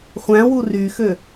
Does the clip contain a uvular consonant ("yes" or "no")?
yes